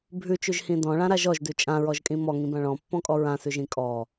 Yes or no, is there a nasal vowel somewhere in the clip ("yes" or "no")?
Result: yes